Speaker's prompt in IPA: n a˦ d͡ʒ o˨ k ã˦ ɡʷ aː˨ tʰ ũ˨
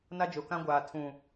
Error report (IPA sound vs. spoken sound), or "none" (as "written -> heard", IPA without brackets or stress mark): none